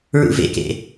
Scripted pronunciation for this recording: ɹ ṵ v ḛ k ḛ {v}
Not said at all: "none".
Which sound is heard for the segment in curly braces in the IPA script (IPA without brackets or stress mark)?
none